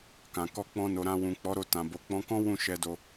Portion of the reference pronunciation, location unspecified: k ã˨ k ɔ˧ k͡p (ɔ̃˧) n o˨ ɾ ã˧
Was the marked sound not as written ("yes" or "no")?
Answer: no